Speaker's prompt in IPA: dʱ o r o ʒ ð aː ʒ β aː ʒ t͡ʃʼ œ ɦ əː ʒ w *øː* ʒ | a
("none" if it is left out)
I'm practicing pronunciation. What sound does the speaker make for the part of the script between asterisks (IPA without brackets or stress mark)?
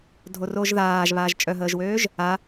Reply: øː